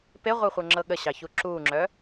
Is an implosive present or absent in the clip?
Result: present